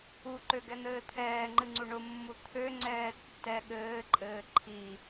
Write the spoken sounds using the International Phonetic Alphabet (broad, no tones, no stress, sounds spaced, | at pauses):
u ǃ ø ɡ ɛ n̪ ɘː t̪ʰ ɛː ŋ͡ǃ ɨ ŋ͡ǀ u ɳ ʊ mː u t̪ʰ ø ŋ͡ǀ ɛː tː ɛ ɠ ɘː ǃʼ ɘː ǃʰ i